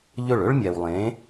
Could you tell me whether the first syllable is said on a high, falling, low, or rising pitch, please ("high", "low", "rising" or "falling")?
falling